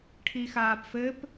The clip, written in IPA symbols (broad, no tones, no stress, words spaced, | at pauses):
ʈʰixaːpfɘp